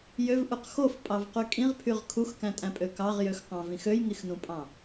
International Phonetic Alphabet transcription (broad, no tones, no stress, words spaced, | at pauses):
jøvʔuq xofpʼɑvqy kʼĩʁpʰyʁ kʰuxkæ̃tʼæ̃pʼø kɑʁjøxqɑ̃vĩx øjŋixnũpʼɑ̃